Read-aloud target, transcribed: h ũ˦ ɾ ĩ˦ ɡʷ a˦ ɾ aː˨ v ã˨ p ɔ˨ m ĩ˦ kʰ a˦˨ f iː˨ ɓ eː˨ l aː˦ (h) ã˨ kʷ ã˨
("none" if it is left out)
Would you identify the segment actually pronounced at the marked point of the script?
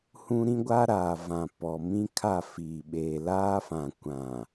f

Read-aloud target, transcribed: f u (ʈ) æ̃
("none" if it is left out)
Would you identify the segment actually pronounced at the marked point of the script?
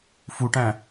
ʈ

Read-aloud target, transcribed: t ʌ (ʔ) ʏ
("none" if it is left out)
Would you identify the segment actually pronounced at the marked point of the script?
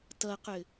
q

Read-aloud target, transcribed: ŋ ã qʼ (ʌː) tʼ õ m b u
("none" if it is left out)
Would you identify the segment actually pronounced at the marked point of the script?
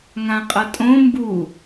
ʌ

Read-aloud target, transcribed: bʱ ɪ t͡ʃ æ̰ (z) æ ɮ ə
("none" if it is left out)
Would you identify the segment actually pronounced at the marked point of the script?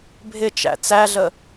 t͡s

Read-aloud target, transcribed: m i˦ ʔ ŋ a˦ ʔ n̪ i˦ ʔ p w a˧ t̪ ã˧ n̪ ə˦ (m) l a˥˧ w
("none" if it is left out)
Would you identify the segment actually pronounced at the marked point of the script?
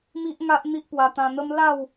m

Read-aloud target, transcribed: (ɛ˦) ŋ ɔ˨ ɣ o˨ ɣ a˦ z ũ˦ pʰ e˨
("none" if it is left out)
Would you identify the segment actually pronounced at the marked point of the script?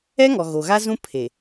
ɛ˦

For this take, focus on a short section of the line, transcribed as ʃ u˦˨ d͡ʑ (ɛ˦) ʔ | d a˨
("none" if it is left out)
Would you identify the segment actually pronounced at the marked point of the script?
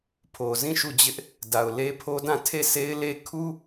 ɪ˦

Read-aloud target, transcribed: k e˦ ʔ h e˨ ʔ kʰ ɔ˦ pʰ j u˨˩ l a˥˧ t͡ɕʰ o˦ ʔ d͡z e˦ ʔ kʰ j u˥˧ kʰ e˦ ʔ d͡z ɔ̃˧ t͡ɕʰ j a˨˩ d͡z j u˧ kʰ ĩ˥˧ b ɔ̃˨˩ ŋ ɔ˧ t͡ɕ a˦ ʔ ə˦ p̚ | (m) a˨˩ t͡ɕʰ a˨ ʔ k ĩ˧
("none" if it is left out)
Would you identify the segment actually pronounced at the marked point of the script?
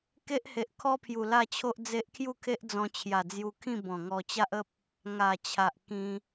ŋ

